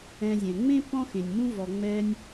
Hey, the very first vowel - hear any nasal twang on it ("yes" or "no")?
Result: yes